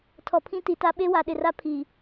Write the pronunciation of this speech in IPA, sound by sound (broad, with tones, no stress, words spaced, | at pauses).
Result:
tʰɔ˨pʰĩ˦ti˨ta˦ ɓe˦wa˨ɗɪ˨ra˦ pʰi˨